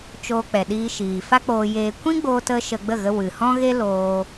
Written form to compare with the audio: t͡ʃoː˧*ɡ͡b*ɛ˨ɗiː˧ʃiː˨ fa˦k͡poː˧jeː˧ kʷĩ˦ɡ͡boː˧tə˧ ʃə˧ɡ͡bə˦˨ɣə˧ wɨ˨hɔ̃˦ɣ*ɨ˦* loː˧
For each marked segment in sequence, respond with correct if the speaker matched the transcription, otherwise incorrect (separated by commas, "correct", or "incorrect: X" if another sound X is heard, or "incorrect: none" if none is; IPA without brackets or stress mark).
incorrect: k͡p, incorrect: e˦